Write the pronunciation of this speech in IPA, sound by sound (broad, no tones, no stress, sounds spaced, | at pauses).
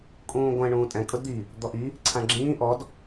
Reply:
kʼ ũː ɡʷ ɛ̃ ɳ ũː tʼ ɛ̃ kʼ ʊ d d̪ i | d̪ ɔ ʔ i | ǀʰ ã ɡ͡ǁ ĩː ʔ ɔ d